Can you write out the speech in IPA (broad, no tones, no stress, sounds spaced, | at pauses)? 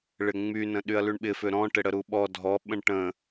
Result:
ɭ ɪ ŋ͡m y n ə̃ ɗ y ɐ̯ l y ɳ ɓ ɪ f ʏ ɾ ɔ̃ ʈ ɪ ɽ ə ɾ u ɓ ɔ dʱ ɔ ɓ ə̃ ɳ ʈ ə̃